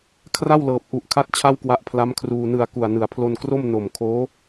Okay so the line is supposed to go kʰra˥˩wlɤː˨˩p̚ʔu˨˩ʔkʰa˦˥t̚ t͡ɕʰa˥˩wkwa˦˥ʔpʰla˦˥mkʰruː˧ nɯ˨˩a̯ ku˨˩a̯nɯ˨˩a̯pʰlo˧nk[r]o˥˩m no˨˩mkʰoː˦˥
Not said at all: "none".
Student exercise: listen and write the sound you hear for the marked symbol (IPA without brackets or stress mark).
r